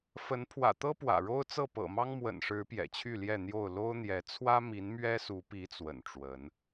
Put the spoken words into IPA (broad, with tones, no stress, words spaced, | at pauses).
fə˨˦npʰwä̰˨˩t̪ɤ˦ pwä̰˨˩ɻo˦ʊ̯t͡sɤ˥˨ pɤ̰˨˩mɑ˦ŋ mwə̰˨˩nʂɻ̩˨˦ pjɛ̰˨˩t͡ɕʰy˥˨ljɛ˥˨n̪jo˥˨ʊ̯ lo˦ʊ̯n̪jɛ˨˦ t͡sʰwä˦mi˨˦n mɥɛ˦su˨˦pi˨˦ t͡swə̰˨˩nʈ͡ʂwə˨˦n